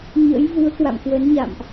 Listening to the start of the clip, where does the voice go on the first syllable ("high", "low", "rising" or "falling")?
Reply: rising